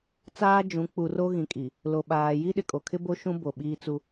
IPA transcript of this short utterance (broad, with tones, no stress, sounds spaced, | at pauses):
t͡s aː˦ d͡ʒ ũ˨˦ k͡p u˨ r o˦ ɣ ĩ˨ kʼ i˨ | l o˨ ɓ aː˨ j i˦ ɗ ɪ˨ kʼ o˨ kʰ ɪ˦ b o˦ ʃ ũ˦ b o˨ ɓ iː˦ t͡s u˦